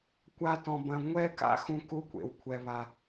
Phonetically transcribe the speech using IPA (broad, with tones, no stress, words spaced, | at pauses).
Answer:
kʷa˦tɔ̃˧bɐ̃˧ ŋʷɛ˦ka̰˦xũ˧ ku˦kʷḛ˨w kʷʰɛ˧βa˧